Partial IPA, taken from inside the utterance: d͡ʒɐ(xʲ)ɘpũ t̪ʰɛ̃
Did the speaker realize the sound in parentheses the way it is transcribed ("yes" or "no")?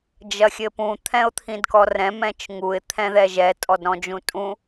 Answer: yes